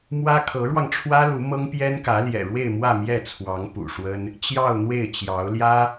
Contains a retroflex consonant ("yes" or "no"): yes